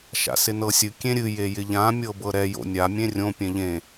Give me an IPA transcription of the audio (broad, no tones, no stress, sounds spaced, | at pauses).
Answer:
ʃ a̰ s ɪ n ɤ sʲ ɨ kʲ ẽ ɾʲ ɨ j e j ɪ ʎ ã mʲ ɤ b ɤ ɾ ɛ j o̰ nʲ a mʲ ẽ rʲ õ pʲ ɛ̃ ʎ ẽ